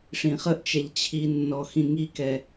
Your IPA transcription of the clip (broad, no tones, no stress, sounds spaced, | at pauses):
ʂ ĩ χ ə ʔ t͡ʃ ɛ ʎ t͡ɕʰ i nː ɔ x ĩ ŋ i k ɛ